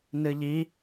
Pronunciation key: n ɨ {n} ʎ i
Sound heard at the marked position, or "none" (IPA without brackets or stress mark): none